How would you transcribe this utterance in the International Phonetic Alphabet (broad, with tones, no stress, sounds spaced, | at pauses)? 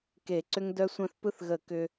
k e˨˩˦ ǀ ʏ˧ ŋ d œ˧ sʷ œ̃˧ θ p ɯ˧ θ ɣ ə˨˩˦ k ʏ˧